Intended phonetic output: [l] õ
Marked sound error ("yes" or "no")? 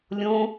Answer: yes